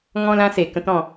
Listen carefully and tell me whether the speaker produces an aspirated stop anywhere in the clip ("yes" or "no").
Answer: no